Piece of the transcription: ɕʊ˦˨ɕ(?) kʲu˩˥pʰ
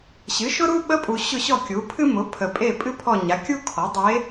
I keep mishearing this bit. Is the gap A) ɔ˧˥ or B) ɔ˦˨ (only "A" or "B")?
B